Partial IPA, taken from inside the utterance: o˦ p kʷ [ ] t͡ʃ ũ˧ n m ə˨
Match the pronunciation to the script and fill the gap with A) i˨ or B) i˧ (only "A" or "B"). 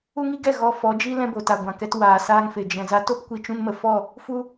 B